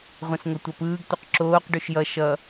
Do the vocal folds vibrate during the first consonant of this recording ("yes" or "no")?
yes